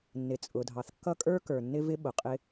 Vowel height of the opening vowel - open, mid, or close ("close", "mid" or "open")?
close